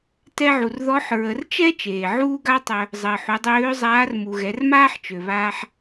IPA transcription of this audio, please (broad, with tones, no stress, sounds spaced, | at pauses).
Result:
t ɛ˧ ʕ u˩ r ð ɔ˧˥ ħ ɹ ə˩˧ r t͡ʃ ɛ˥ t͡ʃ eː˩ ʕ uː˥ ɡ a˥ tˤ œ˧ | zˤ əː˩ ħ u˩˧ dˤ øː˧˥ zˤ aː˧˥ r m u˩ ɣ ɛ˩˧ r m aː˥ ħ t͡ʃ ø˩ β aː˧ ħ